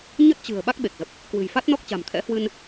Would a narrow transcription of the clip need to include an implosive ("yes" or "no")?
yes